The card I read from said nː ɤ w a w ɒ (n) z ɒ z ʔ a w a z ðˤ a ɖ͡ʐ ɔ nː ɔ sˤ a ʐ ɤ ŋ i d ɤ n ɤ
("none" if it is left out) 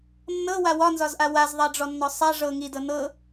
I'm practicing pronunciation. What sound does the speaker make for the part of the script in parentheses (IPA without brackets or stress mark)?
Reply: n